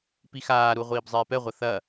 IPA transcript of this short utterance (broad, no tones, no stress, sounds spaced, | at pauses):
p i x aː ɾ u ʁʷ iː b zˤ eː p ɛ ʁʷ ɐ θ ɐ